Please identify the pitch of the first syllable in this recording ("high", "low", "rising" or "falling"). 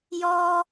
high